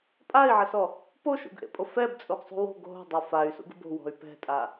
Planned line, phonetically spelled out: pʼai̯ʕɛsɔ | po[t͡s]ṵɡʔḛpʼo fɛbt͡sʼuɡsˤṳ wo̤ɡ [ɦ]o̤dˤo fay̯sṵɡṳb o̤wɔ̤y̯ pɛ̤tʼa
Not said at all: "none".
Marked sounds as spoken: ʃ, ɦ

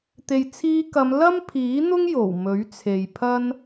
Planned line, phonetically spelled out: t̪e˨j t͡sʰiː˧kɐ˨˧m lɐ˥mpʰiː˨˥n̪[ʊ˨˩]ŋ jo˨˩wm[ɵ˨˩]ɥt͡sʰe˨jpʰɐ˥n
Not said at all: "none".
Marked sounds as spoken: ʊ˥, ɵ˨˥

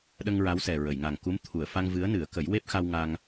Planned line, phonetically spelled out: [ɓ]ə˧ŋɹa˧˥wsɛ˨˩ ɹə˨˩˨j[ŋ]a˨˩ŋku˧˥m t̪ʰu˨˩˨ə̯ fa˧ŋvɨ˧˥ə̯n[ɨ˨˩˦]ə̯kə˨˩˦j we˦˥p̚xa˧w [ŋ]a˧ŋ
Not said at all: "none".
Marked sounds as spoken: ɗ, ŋ, ɨ˨˩˦, ŋ

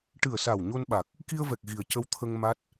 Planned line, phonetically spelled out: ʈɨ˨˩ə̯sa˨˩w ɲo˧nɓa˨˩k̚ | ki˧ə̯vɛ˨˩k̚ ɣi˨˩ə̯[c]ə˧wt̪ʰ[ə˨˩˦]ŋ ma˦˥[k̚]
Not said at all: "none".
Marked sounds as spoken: c, ə˧, t̚

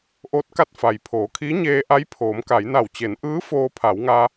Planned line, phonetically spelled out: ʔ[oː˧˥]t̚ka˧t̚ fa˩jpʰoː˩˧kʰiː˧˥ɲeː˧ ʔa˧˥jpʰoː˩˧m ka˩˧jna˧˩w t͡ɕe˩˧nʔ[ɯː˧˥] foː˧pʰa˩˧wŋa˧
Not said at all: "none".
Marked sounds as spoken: oː˧˥, ɯː˧˥

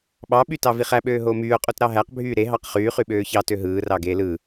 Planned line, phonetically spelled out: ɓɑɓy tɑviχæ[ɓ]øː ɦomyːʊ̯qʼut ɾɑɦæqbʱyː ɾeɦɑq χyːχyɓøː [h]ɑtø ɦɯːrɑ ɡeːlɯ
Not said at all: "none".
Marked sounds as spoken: ɓ, ç

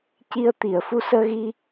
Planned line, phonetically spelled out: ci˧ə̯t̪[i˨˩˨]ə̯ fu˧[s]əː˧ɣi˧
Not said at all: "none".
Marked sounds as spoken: i˨˩˨, s

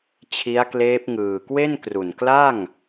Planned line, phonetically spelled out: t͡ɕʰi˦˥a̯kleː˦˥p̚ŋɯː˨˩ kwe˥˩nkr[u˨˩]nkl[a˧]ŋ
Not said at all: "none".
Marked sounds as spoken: u˨˩, a˥˩

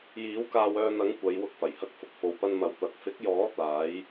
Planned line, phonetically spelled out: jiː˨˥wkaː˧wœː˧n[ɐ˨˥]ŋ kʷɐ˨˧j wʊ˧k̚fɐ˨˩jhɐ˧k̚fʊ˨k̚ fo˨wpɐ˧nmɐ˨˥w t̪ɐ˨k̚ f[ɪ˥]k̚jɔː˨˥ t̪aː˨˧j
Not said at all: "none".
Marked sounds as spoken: ɐ˨˥, ɪ˨˥

